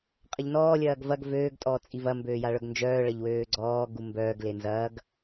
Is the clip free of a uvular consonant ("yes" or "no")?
no